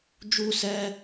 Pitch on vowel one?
high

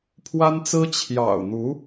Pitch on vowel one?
high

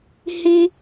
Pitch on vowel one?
high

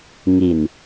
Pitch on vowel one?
low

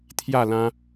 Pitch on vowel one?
falling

